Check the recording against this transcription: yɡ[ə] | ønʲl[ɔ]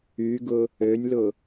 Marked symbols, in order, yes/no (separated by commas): no, no